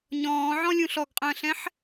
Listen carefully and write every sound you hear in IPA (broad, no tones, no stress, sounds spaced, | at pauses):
ɲ ɔ̃ː ʕ ɔ̃ lʲ ũ ɬ ɔ ɡ qʼ ə̃ː ɬ ɛ̃ ħ